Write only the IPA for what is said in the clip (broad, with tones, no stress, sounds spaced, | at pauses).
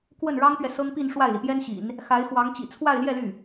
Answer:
k w ə˥˩ n ɻ ɑ˥ ŋ p ɥ ɛ˨ s ɤ˥ ŋ p i˥˧ n ʂ w a˥˩ ɪ̯ l i˩ p j ɛ˥ n ɕ ḭ˨˩˦ n | x a˧˥ ɪ̯ x w ɑ˧˥ ŋ t͡ɕ ḭ˨˩ t͡sʰ w a˥˧ ɪ̯ l j ɛ˥˧ l y˥˩